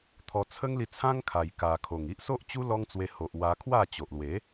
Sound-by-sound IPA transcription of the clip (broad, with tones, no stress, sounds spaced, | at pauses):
t̪ʰ ɔ˧ t͡sʰ ə˦ ŋ l i˧ t͡sʰ ã˦ ŋ kʰ a˨˩ j k a˨˩ kʰ o˨˩ ŋ i˦ ʔ s o˦ ʔ t͡ɕ u˦ l ɔ˦ ŋ t͡s w e˧ h o˨ ʔ w a˧ kʰ w a˥˧ t͡ɕ o˨ ʔ l w e˨˦